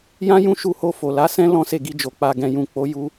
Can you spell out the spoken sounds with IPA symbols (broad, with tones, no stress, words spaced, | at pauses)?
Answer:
jã˦jũ˦˨ ʃu˧ho˧ fo˨la˨˦sɛ̃˦ lɔ̃˦se˦˨ɡi˧d͡ʒo˨ k͡pa˨ɡɛ̃˨jũ˨ k͡po˨˦ ju˧